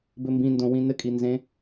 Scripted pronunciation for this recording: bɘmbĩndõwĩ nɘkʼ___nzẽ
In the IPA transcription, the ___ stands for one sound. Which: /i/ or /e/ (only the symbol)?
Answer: i